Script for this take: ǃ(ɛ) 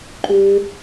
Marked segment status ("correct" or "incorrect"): incorrect